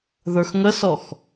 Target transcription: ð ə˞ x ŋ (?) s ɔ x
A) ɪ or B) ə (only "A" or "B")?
B